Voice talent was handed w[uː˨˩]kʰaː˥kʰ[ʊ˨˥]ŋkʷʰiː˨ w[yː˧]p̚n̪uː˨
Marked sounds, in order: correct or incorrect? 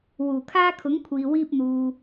correct, correct, incorrect: iː˧

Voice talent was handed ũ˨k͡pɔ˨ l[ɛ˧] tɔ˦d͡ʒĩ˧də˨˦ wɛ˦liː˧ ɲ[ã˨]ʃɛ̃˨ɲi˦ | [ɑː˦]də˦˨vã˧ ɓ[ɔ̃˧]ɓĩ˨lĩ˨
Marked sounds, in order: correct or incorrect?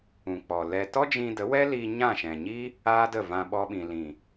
correct, incorrect: ã˦˨, incorrect: aː˦, incorrect: ɔ˧

